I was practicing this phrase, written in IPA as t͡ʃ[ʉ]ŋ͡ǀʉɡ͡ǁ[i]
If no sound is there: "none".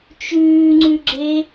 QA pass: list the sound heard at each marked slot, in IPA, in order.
ʉː, e

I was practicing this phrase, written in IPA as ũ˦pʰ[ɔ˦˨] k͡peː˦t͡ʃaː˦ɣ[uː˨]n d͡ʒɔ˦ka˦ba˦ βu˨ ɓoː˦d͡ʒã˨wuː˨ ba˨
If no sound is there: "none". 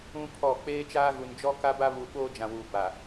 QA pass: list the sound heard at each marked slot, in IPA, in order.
ɔ˦˨, u˨

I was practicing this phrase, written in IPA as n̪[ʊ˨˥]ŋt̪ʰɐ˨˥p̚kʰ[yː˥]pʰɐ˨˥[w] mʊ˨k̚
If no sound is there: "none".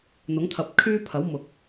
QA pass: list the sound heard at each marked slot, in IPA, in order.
ʊ˨˥, yː˥, w

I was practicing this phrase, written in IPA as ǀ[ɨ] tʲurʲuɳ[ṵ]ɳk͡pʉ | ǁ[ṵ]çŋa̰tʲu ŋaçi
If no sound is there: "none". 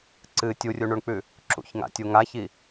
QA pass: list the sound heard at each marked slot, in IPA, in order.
ɨ, u, ṵ

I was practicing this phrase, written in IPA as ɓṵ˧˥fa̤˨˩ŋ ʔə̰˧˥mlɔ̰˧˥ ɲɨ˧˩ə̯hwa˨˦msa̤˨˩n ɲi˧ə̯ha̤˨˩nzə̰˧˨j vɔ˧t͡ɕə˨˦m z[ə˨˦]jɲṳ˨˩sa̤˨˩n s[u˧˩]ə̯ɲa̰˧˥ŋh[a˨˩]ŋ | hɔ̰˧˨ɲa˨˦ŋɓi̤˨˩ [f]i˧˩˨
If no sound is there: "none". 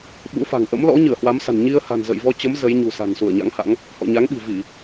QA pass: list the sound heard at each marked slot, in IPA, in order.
ə˨˦, u˧˩, a̰˧˥, v

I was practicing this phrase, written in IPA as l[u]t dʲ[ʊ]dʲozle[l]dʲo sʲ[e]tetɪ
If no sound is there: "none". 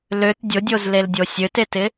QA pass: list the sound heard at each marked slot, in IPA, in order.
ø, ʊ, l, ø

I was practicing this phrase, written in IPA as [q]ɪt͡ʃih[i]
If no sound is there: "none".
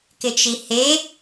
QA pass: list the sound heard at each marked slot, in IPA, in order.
k, e

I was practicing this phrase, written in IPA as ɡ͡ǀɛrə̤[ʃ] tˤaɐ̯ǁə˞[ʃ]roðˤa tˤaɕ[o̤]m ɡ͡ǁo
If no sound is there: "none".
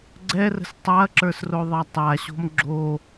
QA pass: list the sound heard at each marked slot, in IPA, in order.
s, s, o̤

